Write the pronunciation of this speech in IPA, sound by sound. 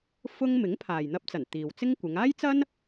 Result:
f ʊ˥ ŋ m ɪ˨˥ ŋ pʰ aː˨ j n̪ ɐ˧ p̚ t͡s ɐ˨˩ n t̪ iː˨ w t͡s ɪ˥ ŋ kʷ ɪ˨˧ ŋ aː˥ j t͡s ɐ˥ n

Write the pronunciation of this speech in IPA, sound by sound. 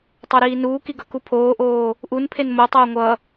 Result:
tˤ o ɾ iː n uː k i ɡ ʌ k u pʰ oː ʔ oː | ʔ u n pʰ e n m o tˤ oː ŋʷ ʌ

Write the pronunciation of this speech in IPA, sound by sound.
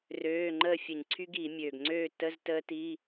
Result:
r øː˧˥˧ ŋ͡ǃ əː˥˨ fʲ ə˧˩˧ ɲ ǀʰ y˦˥ ɡ iː˧˩˧ mʲ øː˨˩ ɡ ŋ͡ǀ øː˥˨ t ə˧˥˧ z t əː˦˥ t i˧˥˧

